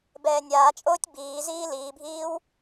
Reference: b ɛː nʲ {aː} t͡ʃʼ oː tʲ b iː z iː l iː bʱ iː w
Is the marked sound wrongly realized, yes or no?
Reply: no